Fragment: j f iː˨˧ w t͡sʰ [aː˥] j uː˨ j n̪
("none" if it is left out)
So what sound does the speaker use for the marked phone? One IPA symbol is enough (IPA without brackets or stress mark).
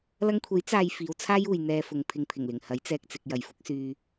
aː˥